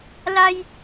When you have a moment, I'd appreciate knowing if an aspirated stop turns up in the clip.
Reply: no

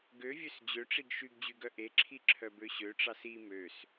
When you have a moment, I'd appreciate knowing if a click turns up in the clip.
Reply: yes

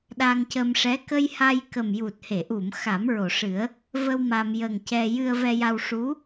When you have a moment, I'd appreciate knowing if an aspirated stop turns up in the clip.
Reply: no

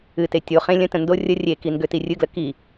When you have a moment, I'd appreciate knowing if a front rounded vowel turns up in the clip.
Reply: yes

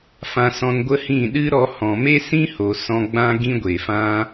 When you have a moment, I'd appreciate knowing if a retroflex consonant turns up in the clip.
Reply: no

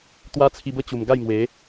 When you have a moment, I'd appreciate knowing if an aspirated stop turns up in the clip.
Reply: yes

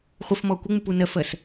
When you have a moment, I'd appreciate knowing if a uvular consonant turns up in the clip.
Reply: yes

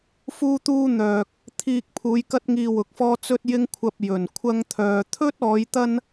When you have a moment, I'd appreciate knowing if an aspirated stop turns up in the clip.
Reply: yes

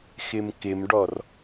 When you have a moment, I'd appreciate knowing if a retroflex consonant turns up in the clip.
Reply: yes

